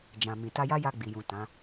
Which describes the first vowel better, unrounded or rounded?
unrounded